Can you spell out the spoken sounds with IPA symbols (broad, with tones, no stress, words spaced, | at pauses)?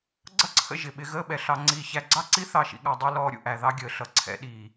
ɡ͡ǀʌ˦ǀʰə̰˧ ʒɪ˨ ɓɪ˧ ɣəː˦ɓɛ˨ɬɑ˧ŋ͡ǀiː˧ çæ˧ɡ͡ǀɑ˦ǀi˦ θɑ˦˨ʃḭ˧ɠɑ˧ dˤi˧ lɔː˧ɾʲṵ˨ʔæ˨ ðɑ˦ɡʲəː˨ ɬʌ˨ǀʰɛ̰˧ɗiː˨